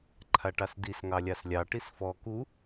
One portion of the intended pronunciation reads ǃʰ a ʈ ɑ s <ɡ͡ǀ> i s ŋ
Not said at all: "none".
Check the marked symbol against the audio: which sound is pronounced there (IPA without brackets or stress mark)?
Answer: d